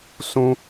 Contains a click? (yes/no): no